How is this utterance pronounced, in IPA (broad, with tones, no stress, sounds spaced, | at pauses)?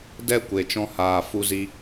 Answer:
d ɛ˧ kʷ e˨ t͡ʃ ɔ̃˧ h aː˨ f u˧ z i˧